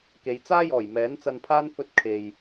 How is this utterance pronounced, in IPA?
k e˨˧ j t͡s aː˥ j ɔː˨˩ j m ɛː˨˥ n t͡s ɐ˧ n pʰ aː˥ n f ɵ˧ t̚ kʰ e˨ j

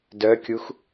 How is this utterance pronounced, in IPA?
d œ kʲ u x

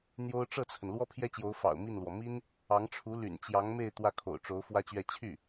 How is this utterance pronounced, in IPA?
n̪ j o˥ ʊ̯ ʈ͡ʂ ɤ˥˩ t͡sʰ ə˩ n l w ɔ˥ pʰ j ɛ˥ t͡ɕ j o˧˥ ʊ̯ f ɑ̰˨˩ ʊ̯ m i˥˩ n l w ɔ˩ m i˥ n | ɑ˧˥ ŋ ʈ͡ʂʰ u˧˥ l y̰˨˩ n t͡ɕ j ɑ˧˥ ŋ m e˥˧ ɪ̯ t̪ w ä˥˩ kʰ o̰˨˩ ʊ̯ ʈ͡ʂ o˧˥ ʊ̯ f w ä˥ t͡ɕ ɥ ɛ˥˧ t͡ɕʰ y˥˩

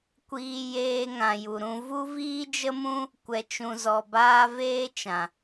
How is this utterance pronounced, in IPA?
kʷ iː˧ j eː˧ ŋ ã˨ j u˨ ɾ ũ˧ v u˦ v iː˦ d͡ʒ ə˦ m ũ˦ | kʷ ɛ˧ t͡ʃ ũ˧ z ɔ˧ b aː˦ v eː˦ t͡ʃ ã˨

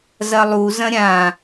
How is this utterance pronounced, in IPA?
z ɐ lˠ u z ɐ̃ ɾʲ ã

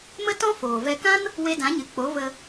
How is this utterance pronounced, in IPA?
m ə˦ t ɔ̃˦ f oː˨ v ɛ˧ k ã˦ n | w e˧ d ã˨˦ ɲ ɨ˨ k͡p o˨˦ v ə˧

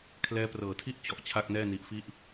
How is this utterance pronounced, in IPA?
kʰ l ɛː˦˥ p r ɤː˨˩ tʰ i˥˩ ʔ t͡ɕ ɔ˨˩ ʔ t͡ɕʰ a˥˩ k̚ n ɛː˥˩ n i˦˥ ʔ f i˥˩ ʔ

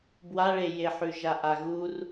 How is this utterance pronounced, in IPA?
b w a ɭ e j e ħ ʉ ʒ a ʔ a ɣ u r

